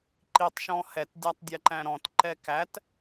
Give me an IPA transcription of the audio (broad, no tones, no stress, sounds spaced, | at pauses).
ǃ i tˤ ʃ ɔ̃ h ɛ t dʲ æ tˤ dʲ ɛ ǃ æ̃ ɾ ɔ̃ t ǃ ɛ k æ t